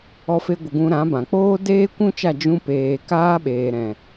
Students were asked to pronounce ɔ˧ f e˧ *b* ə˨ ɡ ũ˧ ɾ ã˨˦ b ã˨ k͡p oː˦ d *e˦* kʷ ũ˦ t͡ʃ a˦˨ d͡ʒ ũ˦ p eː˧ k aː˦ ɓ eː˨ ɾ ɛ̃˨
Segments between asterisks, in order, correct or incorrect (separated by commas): incorrect, incorrect